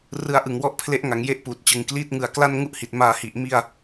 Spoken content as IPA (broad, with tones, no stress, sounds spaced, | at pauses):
r ɯ˧ a̯ ʔ ɯ˨˩ ŋ w ɔ˦˥ ʔ pʰ l e˦˥ ʔ ŋ a˩˦ ŋ j e˦˥ ʔ p uː˨˩ t̚ t͡ɕ ɯ˨˩ ŋ k l iː˦˥ t̚ ŋ ɯ˨˩ a̯ k l a˥˩ n ŋ u˥˩ ʔ h i˨˩ t̚ m aː˧ h i˨˩ ʔ m i˥˩ a̯